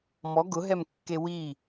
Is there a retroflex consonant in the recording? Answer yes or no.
no